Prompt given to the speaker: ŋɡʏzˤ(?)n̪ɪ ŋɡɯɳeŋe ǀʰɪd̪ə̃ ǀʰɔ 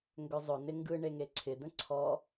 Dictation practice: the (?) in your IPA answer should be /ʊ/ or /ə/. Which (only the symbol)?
ʊ